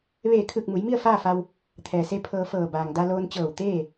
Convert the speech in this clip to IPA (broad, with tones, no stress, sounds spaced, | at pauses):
ʋ eː˧˩ kʰ ɯː˧˩ k̚ m u˩˧ j m i˥˨ ə̯ f aː˥˨ f a˧ w | t̪ʰ ɛː˩ s e˧˥ pʰ ɤː˧ f ɤː˧˩ b aː˩ ŋ d a˧ l oː˧ n t͡ɕ ɤː˧˩ w t̪ eː˥˨